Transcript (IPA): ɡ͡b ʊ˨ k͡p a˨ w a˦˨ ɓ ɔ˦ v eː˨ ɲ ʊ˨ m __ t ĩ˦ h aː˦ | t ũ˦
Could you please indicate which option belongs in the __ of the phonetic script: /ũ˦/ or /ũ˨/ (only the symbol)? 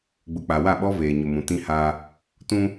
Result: ũ˨